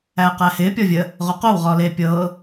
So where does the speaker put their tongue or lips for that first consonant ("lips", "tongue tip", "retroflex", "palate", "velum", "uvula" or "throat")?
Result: uvula